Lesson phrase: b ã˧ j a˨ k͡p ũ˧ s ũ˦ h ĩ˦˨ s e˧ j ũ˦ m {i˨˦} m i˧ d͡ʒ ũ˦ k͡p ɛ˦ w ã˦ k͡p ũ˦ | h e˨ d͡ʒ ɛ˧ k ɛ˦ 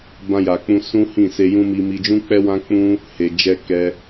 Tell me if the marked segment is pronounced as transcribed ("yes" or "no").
no